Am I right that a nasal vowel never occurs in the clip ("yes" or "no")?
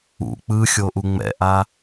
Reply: yes